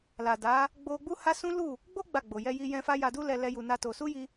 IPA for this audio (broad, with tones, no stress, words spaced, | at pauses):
la˨da˨˦ | ɡ͡bo˦ ɡ͡bu˦ha˦ sũ˦lu˦˨ | ɡ͡bo˦ ɡ͡ba˦˨ɡ͡bo˨ jɛ˧ji˧jɛ̃˧fa˦ ja˧du˦lɛ˧ lɛ˦ju˧na˦to˧ su˦ji˧